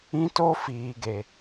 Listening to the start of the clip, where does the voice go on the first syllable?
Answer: high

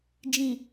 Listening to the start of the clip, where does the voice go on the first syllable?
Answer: low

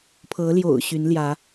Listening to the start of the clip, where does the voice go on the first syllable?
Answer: rising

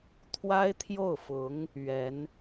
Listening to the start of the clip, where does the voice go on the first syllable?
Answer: high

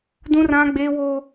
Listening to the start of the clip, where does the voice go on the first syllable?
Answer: high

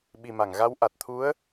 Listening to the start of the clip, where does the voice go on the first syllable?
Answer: low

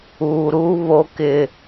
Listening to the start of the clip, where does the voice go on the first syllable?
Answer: low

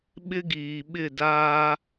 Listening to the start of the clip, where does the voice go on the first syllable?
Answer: high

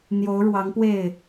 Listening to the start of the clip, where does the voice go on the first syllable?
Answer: rising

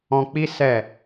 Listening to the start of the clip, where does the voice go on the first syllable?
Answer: high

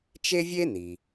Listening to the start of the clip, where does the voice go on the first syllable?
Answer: high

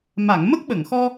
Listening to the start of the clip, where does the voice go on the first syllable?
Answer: low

